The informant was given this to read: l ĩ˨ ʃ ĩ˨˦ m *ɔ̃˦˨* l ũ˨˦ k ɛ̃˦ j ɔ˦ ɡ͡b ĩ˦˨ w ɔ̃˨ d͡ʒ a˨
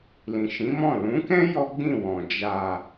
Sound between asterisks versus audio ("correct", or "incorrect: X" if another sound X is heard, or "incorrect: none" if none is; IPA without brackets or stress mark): correct